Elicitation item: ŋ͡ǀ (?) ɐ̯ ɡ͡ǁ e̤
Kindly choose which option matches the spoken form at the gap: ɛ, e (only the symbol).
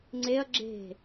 e